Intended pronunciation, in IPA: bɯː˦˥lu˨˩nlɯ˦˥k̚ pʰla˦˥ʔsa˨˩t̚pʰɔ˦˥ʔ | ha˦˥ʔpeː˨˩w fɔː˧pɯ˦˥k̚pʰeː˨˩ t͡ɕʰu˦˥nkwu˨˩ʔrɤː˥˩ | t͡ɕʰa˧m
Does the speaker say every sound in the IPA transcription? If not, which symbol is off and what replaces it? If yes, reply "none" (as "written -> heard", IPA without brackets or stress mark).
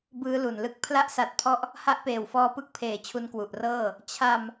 none